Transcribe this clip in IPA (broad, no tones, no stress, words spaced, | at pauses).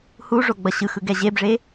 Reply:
huʐo ɡ͡bʌɕɯxɯ ɡɛʑebʐe